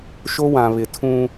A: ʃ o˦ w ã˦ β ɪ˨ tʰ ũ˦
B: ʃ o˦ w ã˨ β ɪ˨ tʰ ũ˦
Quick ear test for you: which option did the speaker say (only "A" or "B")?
B